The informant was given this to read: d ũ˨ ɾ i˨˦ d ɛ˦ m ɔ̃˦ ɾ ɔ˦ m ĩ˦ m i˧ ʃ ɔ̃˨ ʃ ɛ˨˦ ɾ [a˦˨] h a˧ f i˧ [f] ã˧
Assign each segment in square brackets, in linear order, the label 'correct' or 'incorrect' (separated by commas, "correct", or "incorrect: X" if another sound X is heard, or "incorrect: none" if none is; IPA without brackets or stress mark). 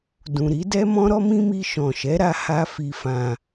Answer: incorrect: a˧, correct